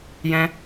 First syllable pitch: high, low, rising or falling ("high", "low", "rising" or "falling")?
high